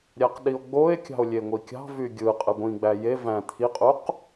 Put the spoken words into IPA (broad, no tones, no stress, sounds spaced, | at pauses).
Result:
ɾʲ æ q ɗ i o̯ ɡ͡b o e̯ kʲ ɑ̤ o̯ lʲ e ŋʷ i kʲ ɑ̤ v y ɡʲ ɯ qʼ ɯ ɡʷ ĩ ɡ͡b æ j e v æ̃ t̪ʰ i qʼ u q